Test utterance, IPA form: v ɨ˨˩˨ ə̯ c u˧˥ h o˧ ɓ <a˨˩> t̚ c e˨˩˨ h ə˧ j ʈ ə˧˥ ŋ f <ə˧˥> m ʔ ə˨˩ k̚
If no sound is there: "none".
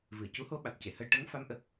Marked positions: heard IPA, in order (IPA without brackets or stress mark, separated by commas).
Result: a˨˩, a˧˥